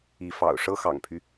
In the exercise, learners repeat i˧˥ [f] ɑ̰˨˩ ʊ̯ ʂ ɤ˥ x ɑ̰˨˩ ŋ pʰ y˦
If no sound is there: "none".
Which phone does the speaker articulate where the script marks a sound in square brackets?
f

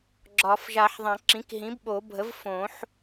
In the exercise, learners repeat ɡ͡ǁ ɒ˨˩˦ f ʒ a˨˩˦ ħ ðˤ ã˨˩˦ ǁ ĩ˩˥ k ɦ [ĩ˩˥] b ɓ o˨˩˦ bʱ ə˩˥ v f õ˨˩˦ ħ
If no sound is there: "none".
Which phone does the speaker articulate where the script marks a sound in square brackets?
ĩ˩˥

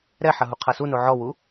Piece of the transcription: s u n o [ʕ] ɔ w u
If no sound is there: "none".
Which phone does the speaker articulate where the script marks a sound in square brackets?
ʕ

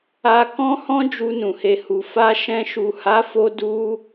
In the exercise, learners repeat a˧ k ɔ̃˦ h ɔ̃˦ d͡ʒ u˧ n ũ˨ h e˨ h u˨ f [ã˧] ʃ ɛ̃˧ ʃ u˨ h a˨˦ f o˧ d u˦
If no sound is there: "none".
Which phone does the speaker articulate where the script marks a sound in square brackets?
a˧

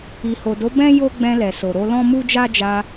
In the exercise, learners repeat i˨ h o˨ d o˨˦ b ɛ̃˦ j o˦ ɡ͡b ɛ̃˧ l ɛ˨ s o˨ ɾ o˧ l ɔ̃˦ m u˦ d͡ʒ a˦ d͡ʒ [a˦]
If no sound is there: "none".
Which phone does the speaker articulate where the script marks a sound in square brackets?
a˧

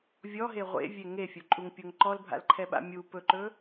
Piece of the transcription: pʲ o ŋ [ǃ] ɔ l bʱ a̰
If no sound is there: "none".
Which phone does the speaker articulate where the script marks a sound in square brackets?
ǃ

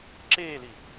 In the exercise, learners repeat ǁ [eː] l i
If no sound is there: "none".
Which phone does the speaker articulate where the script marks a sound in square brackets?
eː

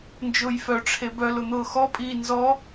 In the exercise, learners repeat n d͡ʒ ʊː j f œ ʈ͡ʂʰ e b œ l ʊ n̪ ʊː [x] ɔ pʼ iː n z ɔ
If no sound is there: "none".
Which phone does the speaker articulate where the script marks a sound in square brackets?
x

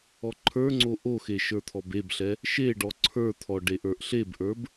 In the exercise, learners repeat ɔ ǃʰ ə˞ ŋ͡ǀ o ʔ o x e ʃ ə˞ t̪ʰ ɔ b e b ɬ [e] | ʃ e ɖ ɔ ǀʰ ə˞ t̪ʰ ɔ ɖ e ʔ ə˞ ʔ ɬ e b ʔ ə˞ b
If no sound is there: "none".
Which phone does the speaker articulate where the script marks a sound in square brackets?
ɛ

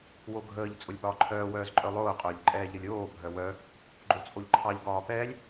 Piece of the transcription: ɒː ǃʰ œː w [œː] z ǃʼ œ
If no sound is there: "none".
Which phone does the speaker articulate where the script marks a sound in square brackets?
œː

